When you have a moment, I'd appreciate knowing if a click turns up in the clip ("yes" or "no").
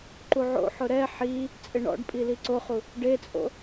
yes